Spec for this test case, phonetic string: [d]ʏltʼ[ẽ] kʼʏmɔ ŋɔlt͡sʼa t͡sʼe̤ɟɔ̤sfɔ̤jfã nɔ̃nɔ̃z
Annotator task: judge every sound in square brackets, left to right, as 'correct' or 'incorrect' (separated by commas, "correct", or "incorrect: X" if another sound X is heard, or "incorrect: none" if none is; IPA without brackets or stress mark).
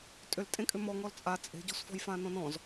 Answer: incorrect: tʼ, correct